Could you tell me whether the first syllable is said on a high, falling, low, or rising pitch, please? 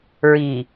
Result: low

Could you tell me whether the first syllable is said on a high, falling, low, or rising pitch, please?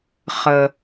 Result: low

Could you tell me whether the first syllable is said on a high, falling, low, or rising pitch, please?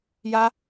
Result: high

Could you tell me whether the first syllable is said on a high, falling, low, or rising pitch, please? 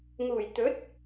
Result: low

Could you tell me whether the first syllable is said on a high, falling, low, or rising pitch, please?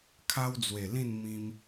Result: high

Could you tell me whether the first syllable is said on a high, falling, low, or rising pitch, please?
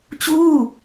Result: falling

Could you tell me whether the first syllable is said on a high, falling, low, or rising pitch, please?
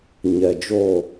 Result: low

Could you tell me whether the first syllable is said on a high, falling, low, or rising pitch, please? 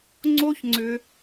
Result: high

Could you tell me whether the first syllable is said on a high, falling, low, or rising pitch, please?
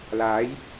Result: rising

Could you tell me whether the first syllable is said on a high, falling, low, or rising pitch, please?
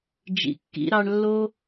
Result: low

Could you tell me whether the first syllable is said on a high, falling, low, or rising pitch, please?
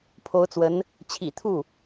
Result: rising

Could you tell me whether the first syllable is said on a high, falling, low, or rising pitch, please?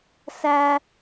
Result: high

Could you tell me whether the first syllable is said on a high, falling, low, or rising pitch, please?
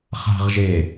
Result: low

